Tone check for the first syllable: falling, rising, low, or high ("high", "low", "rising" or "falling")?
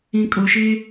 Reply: low